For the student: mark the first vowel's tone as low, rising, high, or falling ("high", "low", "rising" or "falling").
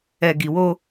low